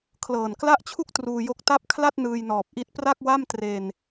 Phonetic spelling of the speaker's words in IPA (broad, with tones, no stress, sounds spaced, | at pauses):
kʰ l ɤː˨˩ n k l a˥˩ ʔ t͡ɕʰ u˥˩ k̚ t r uː˧ j o˦˥ k̚ t a˥˩ p̚ kʰ l a˥˩ t̚ n ɯː˧ j n ɔː˨˩ p̚ ʔ i˦˥ t̚ p r a˥˩ k̚ w a˥˩ m t r e˧ n